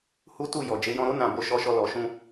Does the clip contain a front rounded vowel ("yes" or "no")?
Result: no